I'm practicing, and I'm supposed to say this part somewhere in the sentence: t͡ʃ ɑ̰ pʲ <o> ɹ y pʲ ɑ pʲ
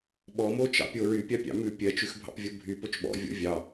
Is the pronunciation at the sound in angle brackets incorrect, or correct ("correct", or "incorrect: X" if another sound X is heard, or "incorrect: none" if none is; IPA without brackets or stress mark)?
correct